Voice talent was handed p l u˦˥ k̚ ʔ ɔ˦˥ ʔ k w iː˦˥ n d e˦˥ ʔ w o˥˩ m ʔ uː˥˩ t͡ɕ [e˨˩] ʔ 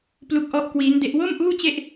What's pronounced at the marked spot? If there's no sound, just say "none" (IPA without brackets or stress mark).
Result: e˥˩